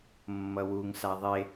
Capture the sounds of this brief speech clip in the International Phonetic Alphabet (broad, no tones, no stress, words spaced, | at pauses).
mːʌwuŋsa ðˤe